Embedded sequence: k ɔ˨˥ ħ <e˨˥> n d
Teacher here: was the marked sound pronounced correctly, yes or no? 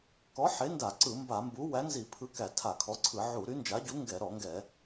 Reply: yes